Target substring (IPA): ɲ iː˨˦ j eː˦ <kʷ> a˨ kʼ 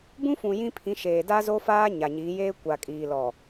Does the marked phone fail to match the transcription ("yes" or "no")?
no